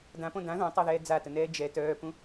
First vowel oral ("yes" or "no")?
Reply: no